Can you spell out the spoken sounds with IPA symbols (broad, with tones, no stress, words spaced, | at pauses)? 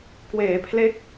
kweː˩˦pʰle˦˥k̚